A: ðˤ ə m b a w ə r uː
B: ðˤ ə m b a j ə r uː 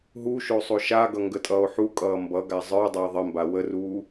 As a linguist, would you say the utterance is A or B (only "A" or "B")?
A